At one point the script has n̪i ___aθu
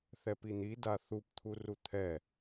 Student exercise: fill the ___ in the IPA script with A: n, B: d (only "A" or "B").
B